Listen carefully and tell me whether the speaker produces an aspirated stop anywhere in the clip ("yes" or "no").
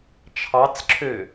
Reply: yes